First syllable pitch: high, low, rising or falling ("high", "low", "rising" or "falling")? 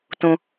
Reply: low